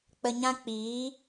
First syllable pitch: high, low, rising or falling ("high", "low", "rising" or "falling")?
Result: low